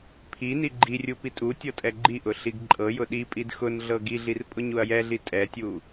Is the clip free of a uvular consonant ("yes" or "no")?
yes